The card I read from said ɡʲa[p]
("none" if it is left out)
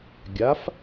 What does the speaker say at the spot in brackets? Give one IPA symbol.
f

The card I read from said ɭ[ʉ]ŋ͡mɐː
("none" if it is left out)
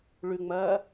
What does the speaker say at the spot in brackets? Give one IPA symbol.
ʉ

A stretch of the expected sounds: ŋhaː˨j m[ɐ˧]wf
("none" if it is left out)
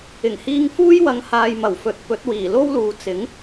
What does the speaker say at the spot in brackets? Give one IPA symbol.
ɐ˨˩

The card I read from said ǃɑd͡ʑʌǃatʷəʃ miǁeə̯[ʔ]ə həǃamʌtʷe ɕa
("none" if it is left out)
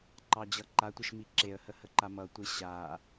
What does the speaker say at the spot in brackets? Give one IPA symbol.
h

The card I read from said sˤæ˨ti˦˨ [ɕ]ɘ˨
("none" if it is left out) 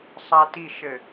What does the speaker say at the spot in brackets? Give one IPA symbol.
ʃ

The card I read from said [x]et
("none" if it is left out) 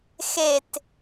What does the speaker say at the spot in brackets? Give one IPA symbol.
x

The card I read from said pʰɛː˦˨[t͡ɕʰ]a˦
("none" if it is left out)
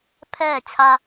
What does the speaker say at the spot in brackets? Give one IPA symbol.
t͡ɕʰ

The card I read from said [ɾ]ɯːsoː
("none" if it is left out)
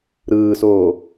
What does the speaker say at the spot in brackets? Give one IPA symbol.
ɾ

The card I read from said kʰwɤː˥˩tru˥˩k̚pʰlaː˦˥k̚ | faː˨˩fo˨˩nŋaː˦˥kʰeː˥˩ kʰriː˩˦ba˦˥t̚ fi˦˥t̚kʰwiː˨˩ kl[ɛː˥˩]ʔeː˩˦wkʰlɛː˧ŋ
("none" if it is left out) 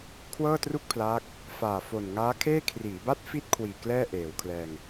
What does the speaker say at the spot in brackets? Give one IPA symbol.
ɛː˥˩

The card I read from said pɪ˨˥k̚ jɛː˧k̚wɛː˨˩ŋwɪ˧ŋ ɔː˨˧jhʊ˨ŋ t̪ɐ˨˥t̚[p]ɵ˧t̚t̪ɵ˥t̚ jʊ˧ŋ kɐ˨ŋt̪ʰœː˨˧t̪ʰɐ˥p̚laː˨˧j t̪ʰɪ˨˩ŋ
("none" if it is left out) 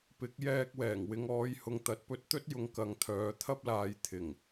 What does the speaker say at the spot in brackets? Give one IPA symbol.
p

